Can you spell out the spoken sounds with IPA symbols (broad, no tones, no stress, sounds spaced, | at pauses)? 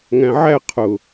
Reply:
ŋ æ̃ ʕ æ qʰ ʊ